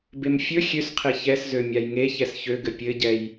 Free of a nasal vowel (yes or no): yes